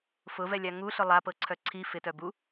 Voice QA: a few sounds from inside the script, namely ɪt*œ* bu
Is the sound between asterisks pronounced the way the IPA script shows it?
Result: yes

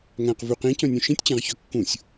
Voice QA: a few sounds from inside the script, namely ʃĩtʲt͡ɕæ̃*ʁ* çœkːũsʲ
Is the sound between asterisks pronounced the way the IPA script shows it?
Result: yes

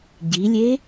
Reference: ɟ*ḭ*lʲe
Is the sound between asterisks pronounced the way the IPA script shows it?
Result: no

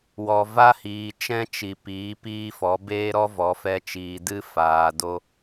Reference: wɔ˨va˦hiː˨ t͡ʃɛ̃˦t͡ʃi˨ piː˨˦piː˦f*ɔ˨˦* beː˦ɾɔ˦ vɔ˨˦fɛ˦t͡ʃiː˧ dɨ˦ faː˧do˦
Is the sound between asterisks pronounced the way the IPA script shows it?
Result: yes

